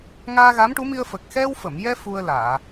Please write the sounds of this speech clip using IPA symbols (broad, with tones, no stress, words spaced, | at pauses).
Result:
ŋaː˧ɣa˧˥mʈu˧˥mi˧ə̯ fə˨˩k̚ xɛ˧wfə˨˩˨mjɛ˧ fu˧ə̯laː˨˩˨